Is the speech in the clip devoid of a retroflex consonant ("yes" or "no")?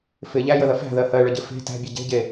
no